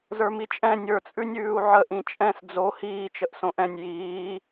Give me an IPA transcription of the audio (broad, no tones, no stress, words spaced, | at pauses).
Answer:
zə˞mit͡ʃʼɛ̃ nʲə˞t͡sʼʉnʲʉːu̯ ʕə ʔĩt͡ʃʼɛ̃s d͡zo hiːt͡ʃəʔ sõʔɛ̃nʲ jiː